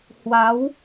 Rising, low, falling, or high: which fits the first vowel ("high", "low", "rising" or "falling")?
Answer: rising